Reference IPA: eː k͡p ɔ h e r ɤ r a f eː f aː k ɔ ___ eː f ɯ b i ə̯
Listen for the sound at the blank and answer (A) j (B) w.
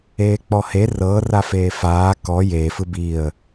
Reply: A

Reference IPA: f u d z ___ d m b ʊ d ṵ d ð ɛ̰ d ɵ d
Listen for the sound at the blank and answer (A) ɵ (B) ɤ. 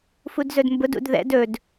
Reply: A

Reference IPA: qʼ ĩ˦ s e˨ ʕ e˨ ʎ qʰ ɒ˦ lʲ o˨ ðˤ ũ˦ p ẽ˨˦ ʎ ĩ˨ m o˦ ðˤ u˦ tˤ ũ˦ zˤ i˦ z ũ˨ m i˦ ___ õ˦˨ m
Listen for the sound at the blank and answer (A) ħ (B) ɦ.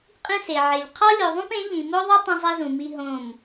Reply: B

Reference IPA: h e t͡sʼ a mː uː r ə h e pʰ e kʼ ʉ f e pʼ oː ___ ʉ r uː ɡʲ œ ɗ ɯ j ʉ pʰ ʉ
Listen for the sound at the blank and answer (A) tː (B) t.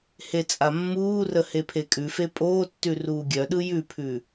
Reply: A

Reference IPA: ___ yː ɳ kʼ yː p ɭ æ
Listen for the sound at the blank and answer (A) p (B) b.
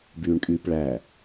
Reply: B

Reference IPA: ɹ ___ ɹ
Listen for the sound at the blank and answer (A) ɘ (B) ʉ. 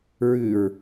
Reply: B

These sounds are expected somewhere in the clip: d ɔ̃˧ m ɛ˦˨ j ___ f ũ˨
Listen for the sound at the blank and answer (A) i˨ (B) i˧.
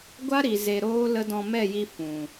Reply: B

